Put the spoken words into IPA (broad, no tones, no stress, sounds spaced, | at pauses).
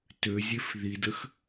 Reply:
t ø zʲ e f ð i d ə x